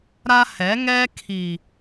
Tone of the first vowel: high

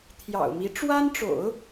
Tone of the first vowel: low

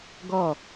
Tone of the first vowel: falling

